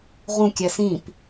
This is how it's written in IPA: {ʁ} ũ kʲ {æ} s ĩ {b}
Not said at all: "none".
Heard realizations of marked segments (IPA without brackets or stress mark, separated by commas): ʁ, æ, p